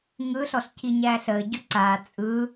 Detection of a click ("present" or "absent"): present